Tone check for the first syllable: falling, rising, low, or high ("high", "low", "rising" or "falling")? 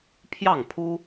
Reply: falling